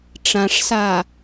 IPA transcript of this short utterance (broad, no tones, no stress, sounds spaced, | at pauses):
ʈ͡ʂ ã ʂ s a